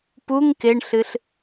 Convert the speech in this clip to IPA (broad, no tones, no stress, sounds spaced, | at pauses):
p u ŋ k ɪ ɳ ɬ ɨ ɬ